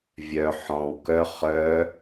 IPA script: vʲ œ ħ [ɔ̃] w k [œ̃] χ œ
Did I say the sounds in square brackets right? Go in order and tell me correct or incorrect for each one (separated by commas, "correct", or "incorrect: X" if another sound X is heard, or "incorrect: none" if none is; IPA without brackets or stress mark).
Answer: correct, incorrect: œ